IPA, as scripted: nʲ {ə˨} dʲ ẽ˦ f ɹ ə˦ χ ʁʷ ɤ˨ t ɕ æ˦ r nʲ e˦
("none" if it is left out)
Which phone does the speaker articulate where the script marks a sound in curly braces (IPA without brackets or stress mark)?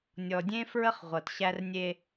ɔ˨